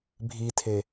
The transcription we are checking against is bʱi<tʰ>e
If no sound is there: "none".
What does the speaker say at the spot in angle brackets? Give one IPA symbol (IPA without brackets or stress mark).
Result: tʰ